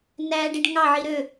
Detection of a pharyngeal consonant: present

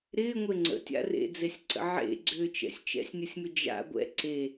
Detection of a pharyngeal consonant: present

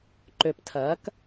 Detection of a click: present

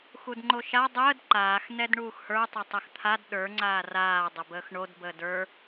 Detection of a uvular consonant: absent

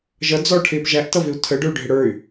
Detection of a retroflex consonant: present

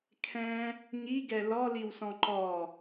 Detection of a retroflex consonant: absent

